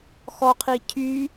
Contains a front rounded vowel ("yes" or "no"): yes